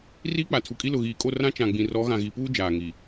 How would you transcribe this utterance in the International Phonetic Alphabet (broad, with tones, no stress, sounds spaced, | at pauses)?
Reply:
r iː˦ k͡p a˨ tʰ u˨ kʼ i˦ l ʊ˨ ɣ iː˨ kʼ o˦˨ r ã˦ t͡ʃ ã˨ ɡ͡b ĩ˨ r ɔ˨˦ ɣ ã˨ ɣ i˨ p uː˦ d͡ʒ aː˨ ŋ i˨